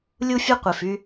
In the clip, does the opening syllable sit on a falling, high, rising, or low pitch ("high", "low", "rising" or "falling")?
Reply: high